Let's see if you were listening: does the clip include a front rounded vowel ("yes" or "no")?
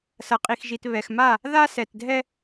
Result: no